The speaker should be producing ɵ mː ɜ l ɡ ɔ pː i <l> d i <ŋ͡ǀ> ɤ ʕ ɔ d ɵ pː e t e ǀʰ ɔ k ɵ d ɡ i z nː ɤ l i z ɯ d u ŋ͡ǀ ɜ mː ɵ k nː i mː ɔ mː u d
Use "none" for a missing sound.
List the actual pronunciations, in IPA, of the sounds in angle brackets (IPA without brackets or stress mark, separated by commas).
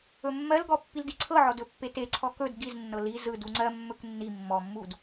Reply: l, ǀʰ